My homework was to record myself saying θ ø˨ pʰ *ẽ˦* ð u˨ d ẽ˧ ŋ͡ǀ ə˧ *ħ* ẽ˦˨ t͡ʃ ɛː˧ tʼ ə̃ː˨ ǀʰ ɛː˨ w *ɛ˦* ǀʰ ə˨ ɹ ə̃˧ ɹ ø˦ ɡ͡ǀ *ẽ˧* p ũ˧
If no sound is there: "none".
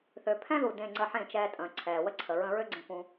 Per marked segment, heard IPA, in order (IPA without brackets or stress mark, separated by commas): ɛ̃˦, ħ, ə˦, ẽ˧